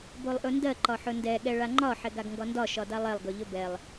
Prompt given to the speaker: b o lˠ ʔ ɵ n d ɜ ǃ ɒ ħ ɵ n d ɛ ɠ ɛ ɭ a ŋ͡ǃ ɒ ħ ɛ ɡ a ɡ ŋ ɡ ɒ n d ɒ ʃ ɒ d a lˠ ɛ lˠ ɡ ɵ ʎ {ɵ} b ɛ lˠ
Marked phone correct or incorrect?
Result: correct